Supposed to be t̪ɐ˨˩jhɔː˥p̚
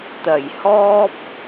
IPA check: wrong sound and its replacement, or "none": none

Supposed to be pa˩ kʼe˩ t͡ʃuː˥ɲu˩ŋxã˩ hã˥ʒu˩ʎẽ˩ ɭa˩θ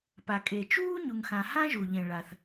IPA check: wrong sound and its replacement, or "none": none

